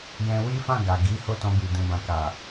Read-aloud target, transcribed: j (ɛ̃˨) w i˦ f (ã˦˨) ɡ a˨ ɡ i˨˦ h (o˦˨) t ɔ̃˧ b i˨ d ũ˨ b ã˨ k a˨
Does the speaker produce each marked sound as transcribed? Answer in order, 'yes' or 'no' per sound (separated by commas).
no, yes, yes